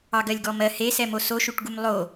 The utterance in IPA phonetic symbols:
ɑ ɡ ɜ lʲ ɡ ɔ m ɜ h e s ɛ m o s o ʃ u ʈ ɡ u m lˠ o

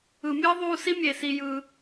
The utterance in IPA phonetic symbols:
ɯ˨ mʲ ɯː˥ ðˤ uː˦ s i˥ mʲ e˩ s i˨ j ɯ˩

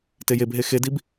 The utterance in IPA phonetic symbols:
t e j e b ɦ e x e d i b

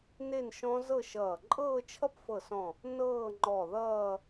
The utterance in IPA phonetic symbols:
n e˥˧ n ʃ ɔ̃˦˥ z ɤ˥˧ ʃ ʌː˧˩ ǃʼ ɤː˥˧ t͡ʃʰ ʌ˥˧ p f ɤ˧˩ s ɔ̃˧˩ | n ɤː˥˧ ŋ͡ǃ ɔ˧˩ ð ʌː˥˧

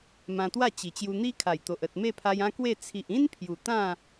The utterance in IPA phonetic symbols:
m ã˧ t̪ w a˥˧ t͡ɕ i˨˩ t͡ɕ j u˧ n̪ i˦ kʰ a˨˩ j t̪ o˨ ʔ ə˨ t̚ m e˥˧ pʰ a˧ j ã˦ k w e˥˧ t͡sʰ i˨ ʔ ĩ˦ n pʰ j u˨˩ t̪ ã˥˧

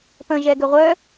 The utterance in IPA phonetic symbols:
p ə̃ ʒ ɛ ɡ ʏ ʁʷ œ

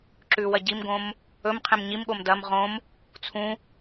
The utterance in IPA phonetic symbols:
ǁ ʉ w ɐ ɟ i m ɡ õ m | ɵ m qʰ ẽ m ɲ i m ɠ o m d ɐ m ʁ õ m | t͡sʰ ũ

